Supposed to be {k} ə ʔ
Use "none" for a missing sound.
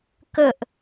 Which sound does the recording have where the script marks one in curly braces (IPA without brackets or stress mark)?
k